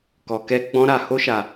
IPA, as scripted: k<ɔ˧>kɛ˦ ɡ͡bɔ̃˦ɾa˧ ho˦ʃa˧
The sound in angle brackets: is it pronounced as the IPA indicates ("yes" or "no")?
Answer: yes